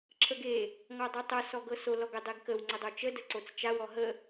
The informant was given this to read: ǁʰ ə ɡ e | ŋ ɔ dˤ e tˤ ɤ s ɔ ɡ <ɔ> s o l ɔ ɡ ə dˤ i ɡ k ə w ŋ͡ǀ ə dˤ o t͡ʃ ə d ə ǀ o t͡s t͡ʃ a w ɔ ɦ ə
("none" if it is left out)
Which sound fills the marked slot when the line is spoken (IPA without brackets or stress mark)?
ɤ